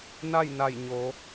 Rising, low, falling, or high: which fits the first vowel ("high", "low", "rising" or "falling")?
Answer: falling